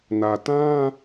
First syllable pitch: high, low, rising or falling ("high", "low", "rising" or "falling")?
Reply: low